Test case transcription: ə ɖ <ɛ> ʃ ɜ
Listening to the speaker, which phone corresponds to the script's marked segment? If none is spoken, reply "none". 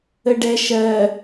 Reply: ɛ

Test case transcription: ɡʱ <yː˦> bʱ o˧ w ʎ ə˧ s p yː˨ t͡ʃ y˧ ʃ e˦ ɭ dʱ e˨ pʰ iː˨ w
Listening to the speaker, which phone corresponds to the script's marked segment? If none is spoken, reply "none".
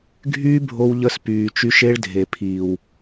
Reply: yː˦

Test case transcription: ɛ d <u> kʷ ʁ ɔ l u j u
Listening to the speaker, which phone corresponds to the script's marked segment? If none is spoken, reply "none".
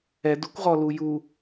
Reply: u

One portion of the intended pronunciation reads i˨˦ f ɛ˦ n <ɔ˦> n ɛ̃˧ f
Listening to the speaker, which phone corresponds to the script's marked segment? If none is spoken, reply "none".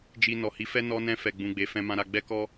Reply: ɔ˦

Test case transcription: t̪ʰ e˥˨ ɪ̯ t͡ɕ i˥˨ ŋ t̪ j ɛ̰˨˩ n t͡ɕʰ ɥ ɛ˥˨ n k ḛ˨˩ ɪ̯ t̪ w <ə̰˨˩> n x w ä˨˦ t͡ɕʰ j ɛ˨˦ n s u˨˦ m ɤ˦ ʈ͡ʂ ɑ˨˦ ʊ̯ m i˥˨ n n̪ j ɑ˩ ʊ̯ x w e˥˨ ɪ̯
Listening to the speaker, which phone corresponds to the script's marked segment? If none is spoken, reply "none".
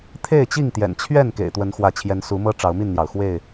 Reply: ə˨˦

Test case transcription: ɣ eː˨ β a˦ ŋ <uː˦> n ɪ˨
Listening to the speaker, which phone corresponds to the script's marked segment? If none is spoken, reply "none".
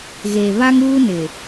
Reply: uː˦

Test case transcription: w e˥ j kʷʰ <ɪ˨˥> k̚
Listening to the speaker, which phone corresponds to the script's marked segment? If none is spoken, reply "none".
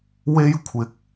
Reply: ɪ˨˥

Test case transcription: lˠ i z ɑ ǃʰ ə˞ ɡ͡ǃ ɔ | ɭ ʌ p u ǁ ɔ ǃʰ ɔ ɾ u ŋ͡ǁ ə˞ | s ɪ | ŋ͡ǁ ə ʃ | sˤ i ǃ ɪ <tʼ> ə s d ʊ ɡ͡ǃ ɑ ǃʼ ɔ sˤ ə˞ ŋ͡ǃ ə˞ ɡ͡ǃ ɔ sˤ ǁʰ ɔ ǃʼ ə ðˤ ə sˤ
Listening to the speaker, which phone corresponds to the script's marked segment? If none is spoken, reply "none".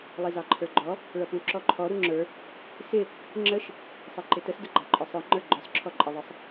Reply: t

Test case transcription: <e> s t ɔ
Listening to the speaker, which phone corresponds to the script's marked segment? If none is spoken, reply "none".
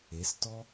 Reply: e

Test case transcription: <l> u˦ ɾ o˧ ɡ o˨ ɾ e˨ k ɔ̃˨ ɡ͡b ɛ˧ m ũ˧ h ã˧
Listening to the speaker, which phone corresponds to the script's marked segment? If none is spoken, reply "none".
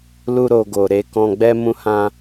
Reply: l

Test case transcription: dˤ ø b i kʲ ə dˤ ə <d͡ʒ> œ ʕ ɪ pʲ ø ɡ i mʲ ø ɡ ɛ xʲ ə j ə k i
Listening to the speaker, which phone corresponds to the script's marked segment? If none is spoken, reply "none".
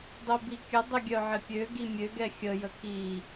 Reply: ɡʲ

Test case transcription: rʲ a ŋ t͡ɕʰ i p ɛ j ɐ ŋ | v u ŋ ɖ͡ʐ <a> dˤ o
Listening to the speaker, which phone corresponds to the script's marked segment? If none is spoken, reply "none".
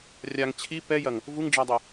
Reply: a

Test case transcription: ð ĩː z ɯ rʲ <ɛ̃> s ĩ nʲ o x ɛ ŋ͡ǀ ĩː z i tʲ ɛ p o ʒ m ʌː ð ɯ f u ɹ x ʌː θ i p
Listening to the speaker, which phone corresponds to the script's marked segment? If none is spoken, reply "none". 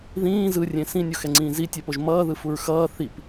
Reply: ẽ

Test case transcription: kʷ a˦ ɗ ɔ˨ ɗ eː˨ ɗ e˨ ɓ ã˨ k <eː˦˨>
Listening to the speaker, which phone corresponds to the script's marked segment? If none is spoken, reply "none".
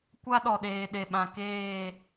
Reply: eː˦˨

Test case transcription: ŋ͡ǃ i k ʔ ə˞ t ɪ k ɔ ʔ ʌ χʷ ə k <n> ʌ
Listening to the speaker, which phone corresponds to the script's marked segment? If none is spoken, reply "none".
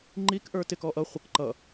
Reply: ǃ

